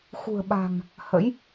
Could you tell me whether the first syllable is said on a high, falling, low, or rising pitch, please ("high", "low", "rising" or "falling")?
low